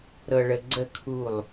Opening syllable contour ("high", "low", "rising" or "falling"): low